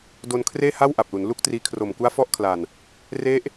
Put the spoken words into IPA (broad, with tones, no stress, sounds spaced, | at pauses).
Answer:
d o˧ n kʰ r eː˥˩ h a˥˩ w ʔ a˨˩ p̚ l u˩˦ n l u˥˩ k̚ t r iː˦˥ kʰ r o˨˩ m k u˦˥ a̯ f ɔ˦˥ ʔ kʰ l a˨˩ n | r e˦˥ ʔ